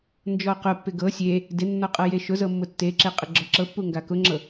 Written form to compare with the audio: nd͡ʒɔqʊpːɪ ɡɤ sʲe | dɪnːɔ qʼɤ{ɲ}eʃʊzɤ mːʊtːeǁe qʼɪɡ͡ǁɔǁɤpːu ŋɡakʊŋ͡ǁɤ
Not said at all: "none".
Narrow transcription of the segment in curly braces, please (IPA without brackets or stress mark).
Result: j